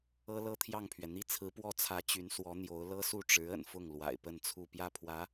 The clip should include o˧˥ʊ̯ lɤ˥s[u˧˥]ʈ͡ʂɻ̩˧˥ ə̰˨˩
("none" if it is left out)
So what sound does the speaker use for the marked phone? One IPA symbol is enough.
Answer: u˥˩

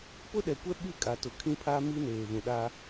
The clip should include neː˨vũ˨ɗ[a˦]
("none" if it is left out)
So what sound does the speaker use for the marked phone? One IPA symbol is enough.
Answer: a˦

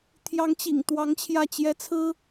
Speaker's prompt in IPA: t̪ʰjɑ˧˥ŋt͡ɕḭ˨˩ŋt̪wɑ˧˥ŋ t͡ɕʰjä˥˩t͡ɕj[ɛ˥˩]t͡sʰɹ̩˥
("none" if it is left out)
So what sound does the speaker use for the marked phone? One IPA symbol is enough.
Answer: ɛ˥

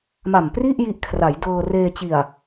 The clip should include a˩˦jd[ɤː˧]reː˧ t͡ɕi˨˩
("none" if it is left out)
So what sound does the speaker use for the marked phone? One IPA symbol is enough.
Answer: ɤː˧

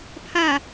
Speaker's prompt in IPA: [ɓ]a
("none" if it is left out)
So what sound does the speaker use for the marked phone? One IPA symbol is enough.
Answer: pʰ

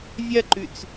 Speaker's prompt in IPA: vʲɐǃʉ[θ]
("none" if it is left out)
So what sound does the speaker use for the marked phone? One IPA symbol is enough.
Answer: t͡s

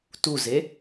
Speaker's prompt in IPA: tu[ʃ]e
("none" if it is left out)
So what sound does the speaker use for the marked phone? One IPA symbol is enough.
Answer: z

